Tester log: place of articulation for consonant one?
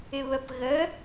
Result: labial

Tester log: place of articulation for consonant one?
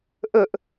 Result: glottal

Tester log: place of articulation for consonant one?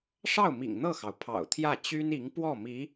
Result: retroflex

